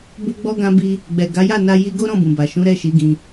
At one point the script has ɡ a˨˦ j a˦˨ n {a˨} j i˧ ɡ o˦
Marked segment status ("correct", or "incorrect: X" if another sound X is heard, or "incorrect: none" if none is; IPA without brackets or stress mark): incorrect: a˧